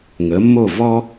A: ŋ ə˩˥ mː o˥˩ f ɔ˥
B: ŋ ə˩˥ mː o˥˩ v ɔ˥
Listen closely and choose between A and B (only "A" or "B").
B